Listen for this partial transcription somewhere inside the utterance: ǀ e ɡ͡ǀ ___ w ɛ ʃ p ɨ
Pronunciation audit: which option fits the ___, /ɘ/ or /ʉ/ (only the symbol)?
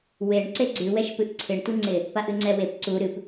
ʉ